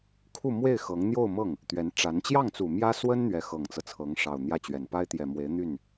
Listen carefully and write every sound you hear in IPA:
kʰ u˥˧ m w e˥˩ ɪ̯ x ɤ˧˥ ŋ n̪ j o˥˧ ʊ̯ m ɤ˥˩ ŋ | t̪ ɥ ɛ˧˥ n ʈ͡ʂ a˧˥ n t͡ɕ j ɑ˥˩ ŋ t͡s u˨˩ m j ä˥ s w ə˥ n n̪ ɥ ɛ˧˥ x ɤ˨˩ ŋ t͡s ɤ˦ t͡sʰ ɤ˧˥ ŋ ʂ ɑ˨˩ ʊ̯ n̪ j ä˥˩ t͡ɕ ɥ ɛ˨˩ n p a˥ ɪ̯ t̪ j ɛ˨˩ m w e˧˥ ɪ̯ n̪ y˥˩ n

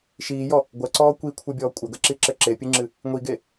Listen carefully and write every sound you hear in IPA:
ʃ iː j ɔ | ɡʷ ɐ ǀ ɔː kʷ i kʷʰ e bʲ ɔː kʷʼ ɐ ɡ ɐ ǁ i ǁ ɘ ǁ e pʲ ɨ ŋ͡ǁ ɨ | ŋʷ i ɡ e

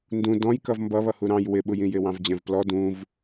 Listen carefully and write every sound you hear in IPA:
n d ũ d ɔ̃ j k ʌ v m b ʌ β ʌ h u ɾ ɑ̃ j w ɪ ɓ u j ĩ j ɪ w ɑ̃ v d͡ʑ ɛ̃ v p l ɔ d ũ v

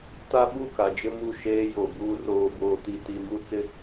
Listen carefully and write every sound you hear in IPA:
t a˦ ɓ u˦˨ k a˨ d͡ʒ ɪ˦ m u˦˨ ʃ eː˦ j o˨ b uː˦ r oː˦ b oː˦ t i˦ t i˦ m u˦ t͡s ɪ˦

